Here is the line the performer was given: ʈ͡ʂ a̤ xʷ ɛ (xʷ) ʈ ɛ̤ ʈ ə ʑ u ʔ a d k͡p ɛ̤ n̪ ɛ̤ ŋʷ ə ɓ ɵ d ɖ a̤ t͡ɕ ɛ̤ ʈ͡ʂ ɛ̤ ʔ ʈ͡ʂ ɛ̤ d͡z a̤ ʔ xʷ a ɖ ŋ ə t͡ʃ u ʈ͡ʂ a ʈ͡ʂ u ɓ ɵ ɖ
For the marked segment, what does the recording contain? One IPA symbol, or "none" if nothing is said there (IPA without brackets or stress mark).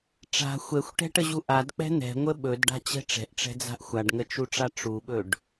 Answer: xʷ